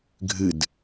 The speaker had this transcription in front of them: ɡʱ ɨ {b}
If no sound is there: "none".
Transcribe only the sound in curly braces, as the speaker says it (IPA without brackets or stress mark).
d